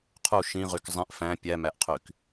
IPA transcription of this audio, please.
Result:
qʰ u ʃ ĩ ʁ y k zˤ ĩ ʔ f æ̃ pʲ æ m æ ʔ qʰ y k

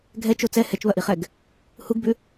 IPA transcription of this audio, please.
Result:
ɡʱ ɛ t͡ʃ o t͡s ɛ h ɛ t͡ʃ β ɐ ʔ i χ ɛ ɡ | h u ɡ b ʉ

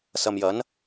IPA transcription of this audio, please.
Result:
s ɐ˨ m j ɐ˨˥ n

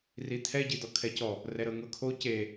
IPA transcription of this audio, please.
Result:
r i t̪ʰ ɛ ɟ i d̪ ɔ kʰ ɛ c ɔ | r ɛ ɾ ɤ ŋ ɤ kʰ o c e

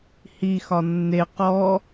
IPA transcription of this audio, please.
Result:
h i x ɒ nː e q ɔ

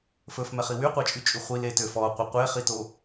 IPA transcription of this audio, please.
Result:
f ɵ f m ɛ χ i w y qʷ ɑ t͡ʃʼ y t͡ʃʼ y χʷ i l e t ø f ɔ qʷ e qʷ e χ i t o

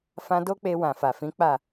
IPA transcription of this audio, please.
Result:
f ã˧ d o˦ k͡p e˧ w ã˨ f a˨ f ĩ˨˦ k͡p a˦˨

